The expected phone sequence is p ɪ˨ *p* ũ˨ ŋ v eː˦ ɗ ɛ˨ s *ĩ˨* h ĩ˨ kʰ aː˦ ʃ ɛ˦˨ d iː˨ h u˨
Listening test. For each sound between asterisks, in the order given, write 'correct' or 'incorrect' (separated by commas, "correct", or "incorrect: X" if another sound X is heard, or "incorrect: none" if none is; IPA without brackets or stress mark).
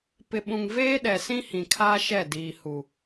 incorrect: ɓ, incorrect: ĩ˦